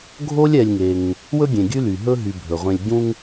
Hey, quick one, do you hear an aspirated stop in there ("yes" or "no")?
no